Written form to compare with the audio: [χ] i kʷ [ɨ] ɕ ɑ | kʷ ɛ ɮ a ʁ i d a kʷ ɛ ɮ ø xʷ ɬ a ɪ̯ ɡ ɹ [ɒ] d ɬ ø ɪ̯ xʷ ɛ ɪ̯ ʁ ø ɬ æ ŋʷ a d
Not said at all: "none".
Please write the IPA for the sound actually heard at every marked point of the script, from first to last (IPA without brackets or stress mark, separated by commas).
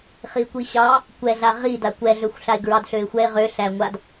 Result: χ, i, ɑ